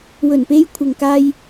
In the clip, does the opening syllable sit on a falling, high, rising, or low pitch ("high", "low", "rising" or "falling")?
low